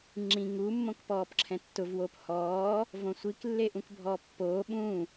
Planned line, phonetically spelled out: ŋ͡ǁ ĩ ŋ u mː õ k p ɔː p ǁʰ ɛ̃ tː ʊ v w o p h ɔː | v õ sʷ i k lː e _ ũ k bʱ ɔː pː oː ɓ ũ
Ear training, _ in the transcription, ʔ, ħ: ʔ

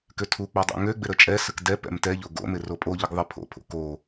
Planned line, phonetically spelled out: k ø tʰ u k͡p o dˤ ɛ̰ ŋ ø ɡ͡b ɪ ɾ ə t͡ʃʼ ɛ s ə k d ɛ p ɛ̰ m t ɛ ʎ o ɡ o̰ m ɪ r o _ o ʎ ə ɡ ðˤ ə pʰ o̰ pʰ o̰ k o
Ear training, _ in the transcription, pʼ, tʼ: pʼ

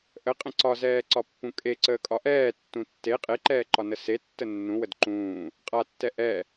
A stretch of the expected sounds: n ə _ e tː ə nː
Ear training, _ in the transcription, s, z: s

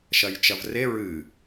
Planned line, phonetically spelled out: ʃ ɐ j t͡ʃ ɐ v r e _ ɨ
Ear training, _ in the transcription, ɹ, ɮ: ɹ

